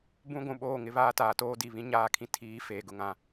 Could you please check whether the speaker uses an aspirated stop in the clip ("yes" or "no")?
yes